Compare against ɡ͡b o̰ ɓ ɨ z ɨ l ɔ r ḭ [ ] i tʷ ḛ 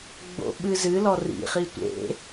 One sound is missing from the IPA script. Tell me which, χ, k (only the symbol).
χ